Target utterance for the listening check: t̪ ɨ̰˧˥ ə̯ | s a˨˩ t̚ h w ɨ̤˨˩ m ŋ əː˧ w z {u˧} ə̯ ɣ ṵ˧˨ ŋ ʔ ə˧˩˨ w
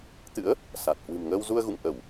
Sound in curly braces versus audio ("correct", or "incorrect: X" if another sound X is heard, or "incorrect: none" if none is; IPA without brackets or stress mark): correct